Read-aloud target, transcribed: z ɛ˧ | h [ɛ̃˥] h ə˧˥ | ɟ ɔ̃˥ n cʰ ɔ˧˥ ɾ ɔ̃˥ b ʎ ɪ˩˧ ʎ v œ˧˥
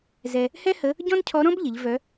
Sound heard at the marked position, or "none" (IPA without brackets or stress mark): ɛ˥